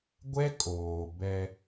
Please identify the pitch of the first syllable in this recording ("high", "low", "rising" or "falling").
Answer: high